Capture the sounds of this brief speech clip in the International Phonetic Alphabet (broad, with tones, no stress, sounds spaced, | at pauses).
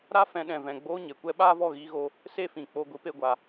ɾ a˦ f ɛ̃˧ ɗ ɛ̃˨ v ɛ̃˨ ɡ͡b oː˦ ɲ e˨ kʷ ɛ˦ ɓ aː˦ v ɔ˦˨ ɣ iː˧ ɣ oː˧ | s e˦ f ĩ˨ k͡p o˧ ɡʷ i˧ p e˧ ɡʷ aː˨